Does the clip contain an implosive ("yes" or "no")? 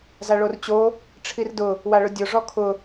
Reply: no